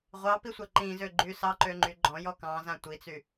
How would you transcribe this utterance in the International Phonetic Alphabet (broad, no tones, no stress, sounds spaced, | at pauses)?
ʁʷ ɑ p i sʷ a ǃ ĩ z ø ɡ͡ǃ y s ɑ ǃ ø ŋ͡ǃ y ɡ͡ǃ ɔ̃ j ɔ k ɑ̃ z ã tʷ i t͡s y